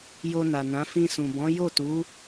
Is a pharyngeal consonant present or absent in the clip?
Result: absent